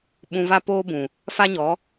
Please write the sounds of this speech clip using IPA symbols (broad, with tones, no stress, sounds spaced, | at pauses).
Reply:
ɓ ũ˧ v a˦ p oː˦ b ũ˨ | f a˦ ɲ ɔ˨˦